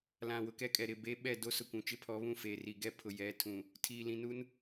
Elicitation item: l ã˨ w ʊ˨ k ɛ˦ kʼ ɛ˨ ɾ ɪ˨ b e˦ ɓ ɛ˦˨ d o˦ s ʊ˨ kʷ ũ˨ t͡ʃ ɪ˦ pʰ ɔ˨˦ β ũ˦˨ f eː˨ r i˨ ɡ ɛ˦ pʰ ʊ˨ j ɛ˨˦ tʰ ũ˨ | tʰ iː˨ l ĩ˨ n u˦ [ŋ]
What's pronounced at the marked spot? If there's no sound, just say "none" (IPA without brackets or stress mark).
n